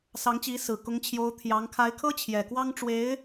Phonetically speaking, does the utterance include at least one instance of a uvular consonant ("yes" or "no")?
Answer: no